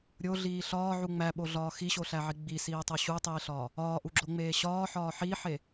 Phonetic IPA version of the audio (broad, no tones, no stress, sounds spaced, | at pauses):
ɾʲ o ɮ iː ɬ ɒː ʕ u ŋ͡m æ ɓ o ɮ ɒː x i ɕ o ɬ æ ʕ i ɡ͡b i s iː tˤ o ɕ u tˤ iː ɬ ɒː | ɒː ʔ u ɡ͡ǁ o ŋ͡m eː ɕ ɒː ħ ɒː ħ i ħ e